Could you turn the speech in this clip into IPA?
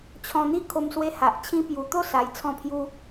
t͡ɕʰɔ̃˧n̪i˥˧ kʰo˧mswe˧ha˨ʔ t͡ɕʰĩ˧pju˨˩t̪o˥˧ sa˧jt͡sʰɔ̃˥˧pʰju˦

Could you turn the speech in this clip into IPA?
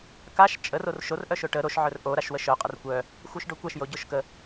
kaʃ t͡ʃʼər orʃor ʔœʃoʈə ɾoʃ ʕœrʔo ɾaʃwəʃœ qʼərkʷœ | xʷœʃɖokʷaʃ joɟoʃkə

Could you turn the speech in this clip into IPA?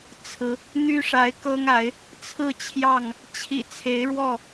t͡sʰɹ̩˨˦ | n̪y˦ʂa˨˦ɪ̯kɤ˦ŋa˨˦ɪ̯ | t͡sʰɹ̩˥˨t͡ɕʰjɑ˥˨ŋ | t͡ɕʰḭ˨˩ t͡sʰe˨˦ɪ̯ɻwɔ˥˨

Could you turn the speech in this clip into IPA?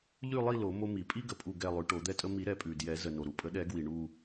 ʎʉ˦˨lˠi˦˨ lo˨˩˦ mo˦mi˨˩˦ pʼi˦ɡə˩ pʼu˦˨ɡɛ˦˨lˠʉ˨˩˦ ʈo˨˩˦d̪ɛ˦tʼə˦ mi˨˩˦ ɾɛ˨˩˦pʼʉ˩djɛ˨˩˦ zə˩no˩ɾu˩ pʼə˨˩˦ɗɛ˨˩˦ɡwi˩ ɳu˦˨

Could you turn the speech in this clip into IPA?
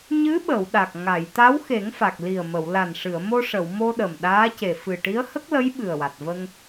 ɲɨ˧˥ɓə˨˩˨w ɗa˨˩k̚ ŋa˨˩˨jt̪a˧˥wxe˨˩˦ŋfa˨˩k̚ li˨˩ə̯mə˨˩˨w la˨˩nʂɨ˨˩˨ə̯mo˧ ʂə˨˩˨wmo˧ ɗə˨˩mɗaː˧˥ce˨˩ fɨ˨˩ ʈi˧˥ə̯hə˦˥k̚lə˧˥j ɓɨ˨˩ə̯wa˨˩t̚və˧ŋ

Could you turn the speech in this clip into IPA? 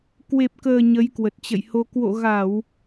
kwe˨˩p̚kəː˨˩ ɲə˨˦jkwə˨˩t̚t͡ɕə̰˧˨jho˧ kwo̰˧˨ɣa˧˩˨w

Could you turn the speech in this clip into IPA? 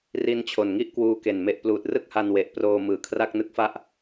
ri˧nt͡ɕʰo˨˩nŋi˥˩ʔ kwuː˦˥ke˨˩nme˦˥ʔ pluː˨˩t̚rɯ˥˩k̚ha˧n we˨˩ʔproː˧ mɯː˨˩kʰra˥˩k̚nɯ˦˥k̚fa˥˩ʔ

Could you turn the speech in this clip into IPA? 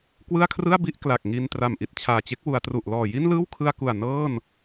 kwɯ˥˩a̯kʰrɯ˥˩a̯bi˥˩ʔ kla˨˩k̚ŋi˧n tra˨˩mʔi˨˩t̚t͡ɕʰaː˨˩t͡ɕe˦˥k̚ wu˩˦a̯tru˨˩ʔlɔː˨˩ji˥˩n lɯː˥˩wkʰɯ˧a̯ku˨˩a̯ nɤː˥˩n

